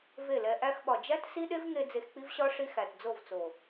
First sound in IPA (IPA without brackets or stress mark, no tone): v